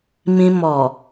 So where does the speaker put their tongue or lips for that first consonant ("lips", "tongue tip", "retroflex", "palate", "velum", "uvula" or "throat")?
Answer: lips